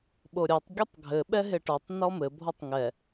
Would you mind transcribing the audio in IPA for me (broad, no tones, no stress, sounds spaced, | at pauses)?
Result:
ɓ o ɾʲ ɔ tˤ ɡʲ ɘ tˤ ɡʱ ɘ ɓ ɛ ɦ e ʈ ɔ tˤ n ɔ m ɘ bʱ ɔ tˤ ŋ ɛ